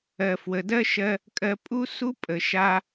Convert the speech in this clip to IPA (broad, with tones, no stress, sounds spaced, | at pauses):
ɜ˩ f w ə˩ d ɜ˥ ʃ ɜ˧ | kʼ ɜ˧ pʼ u˥ s u˥ pʼ ə˩ ʃ a˧